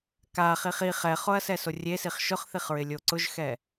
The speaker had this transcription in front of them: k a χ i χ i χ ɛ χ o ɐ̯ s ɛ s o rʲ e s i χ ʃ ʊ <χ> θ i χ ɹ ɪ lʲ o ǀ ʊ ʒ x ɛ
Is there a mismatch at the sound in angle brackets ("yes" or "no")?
no